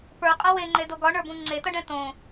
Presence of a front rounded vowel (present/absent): absent